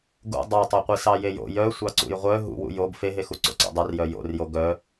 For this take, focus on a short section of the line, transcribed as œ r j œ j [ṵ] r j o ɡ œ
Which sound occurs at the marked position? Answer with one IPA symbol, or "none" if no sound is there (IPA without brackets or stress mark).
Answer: o̰